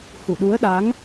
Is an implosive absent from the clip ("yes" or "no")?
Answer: no